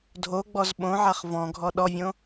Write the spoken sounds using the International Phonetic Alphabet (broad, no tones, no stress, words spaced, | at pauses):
dʱoɡ͡bɔz ɓõʕaχ vɔ̃ɡʱɔ ɗɔvʲõ